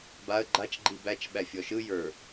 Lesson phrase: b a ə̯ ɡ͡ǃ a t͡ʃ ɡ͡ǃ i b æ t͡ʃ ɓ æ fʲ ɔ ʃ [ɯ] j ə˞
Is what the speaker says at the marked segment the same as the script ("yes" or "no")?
yes